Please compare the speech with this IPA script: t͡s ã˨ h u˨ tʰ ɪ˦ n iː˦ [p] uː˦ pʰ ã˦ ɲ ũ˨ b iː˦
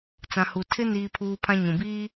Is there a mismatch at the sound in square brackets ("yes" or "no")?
yes